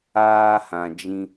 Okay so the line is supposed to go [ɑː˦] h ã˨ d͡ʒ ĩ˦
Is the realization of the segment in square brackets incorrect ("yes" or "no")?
yes